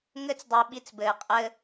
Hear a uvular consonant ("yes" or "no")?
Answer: yes